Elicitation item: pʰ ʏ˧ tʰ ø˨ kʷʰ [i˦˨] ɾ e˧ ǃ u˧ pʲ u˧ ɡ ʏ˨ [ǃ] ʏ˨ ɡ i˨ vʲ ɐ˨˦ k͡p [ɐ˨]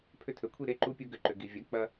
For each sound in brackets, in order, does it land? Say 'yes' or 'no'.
yes, yes, no

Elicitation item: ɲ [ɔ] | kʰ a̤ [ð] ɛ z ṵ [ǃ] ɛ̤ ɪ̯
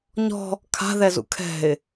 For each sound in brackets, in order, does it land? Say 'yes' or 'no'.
no, yes, no

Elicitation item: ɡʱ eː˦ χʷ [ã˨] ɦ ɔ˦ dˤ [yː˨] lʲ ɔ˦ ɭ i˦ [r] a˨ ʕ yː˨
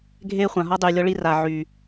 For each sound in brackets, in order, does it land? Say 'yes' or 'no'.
yes, yes, yes

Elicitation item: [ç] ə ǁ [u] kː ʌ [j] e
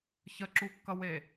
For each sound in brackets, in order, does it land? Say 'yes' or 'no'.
yes, yes, no

